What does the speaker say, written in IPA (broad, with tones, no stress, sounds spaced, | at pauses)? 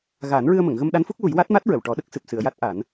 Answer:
ɣ aː˨˩˦ n ɹ ɨ˧ ə̯ m ə˨˩˨ ŋ ɣ ə˧ m ɗ a˧˥ n f u˦˥ k̚ w u˨˩˦ j w a˦˥ t̚ m a˦˥ t̚ ɹ ə˨˩˨ w ʈ ɔ˨˩˦ ɗ ə˦˥ k̚ s ɨ˨˩ p̚ s ɨ˨˩˨ ə̯ j a˦˥ t̚ ʔ a˨˩˦ n